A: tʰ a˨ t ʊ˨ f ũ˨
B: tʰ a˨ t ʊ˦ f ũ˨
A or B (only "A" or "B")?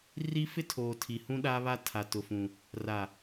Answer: A